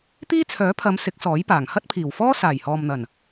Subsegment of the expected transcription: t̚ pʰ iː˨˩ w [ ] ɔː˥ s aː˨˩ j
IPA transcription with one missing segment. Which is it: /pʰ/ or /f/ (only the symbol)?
f